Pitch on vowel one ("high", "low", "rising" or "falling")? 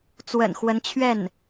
low